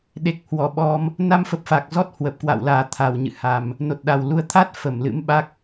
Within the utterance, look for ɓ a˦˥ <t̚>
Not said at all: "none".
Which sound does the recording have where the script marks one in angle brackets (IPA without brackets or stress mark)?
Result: k̚